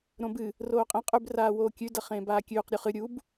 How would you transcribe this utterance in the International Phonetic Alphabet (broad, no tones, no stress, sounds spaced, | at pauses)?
ɾ õ b ɨ | r oː qʼ ẽ qʼ ʉ b r aː w oː kʲ ʉ d ɐ χ ẽː b aː kʲ ʉː q ɾʲ u χ ɨ ɾʲ u b